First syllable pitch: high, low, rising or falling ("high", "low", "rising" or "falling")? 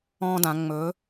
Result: high